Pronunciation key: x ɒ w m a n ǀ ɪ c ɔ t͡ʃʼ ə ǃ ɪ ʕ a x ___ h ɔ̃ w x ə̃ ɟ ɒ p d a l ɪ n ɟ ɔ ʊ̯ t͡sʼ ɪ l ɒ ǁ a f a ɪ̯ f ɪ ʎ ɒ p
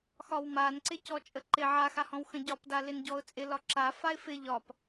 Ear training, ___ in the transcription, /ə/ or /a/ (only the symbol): a